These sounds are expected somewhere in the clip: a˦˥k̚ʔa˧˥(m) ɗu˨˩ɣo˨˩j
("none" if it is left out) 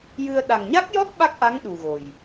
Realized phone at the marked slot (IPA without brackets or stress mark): ŋ